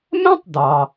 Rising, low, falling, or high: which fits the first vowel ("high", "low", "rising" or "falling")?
high